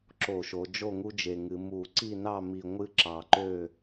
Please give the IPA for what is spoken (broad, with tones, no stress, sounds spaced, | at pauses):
ǁ o˧˩˧ ʃ o˩˧ d͡ʒ o˥˨ ŋ u˦ d͡ʒ e˨˩ ŋ ɨ˩˧ m u˧˩˧ ǀ i˥˨ n ɑ˥˨ m i˨˩ ŋʷ ɨ˦ ǁ ɑ˨˩ ǃ ø˥˨